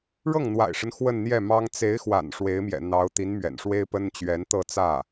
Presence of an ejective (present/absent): absent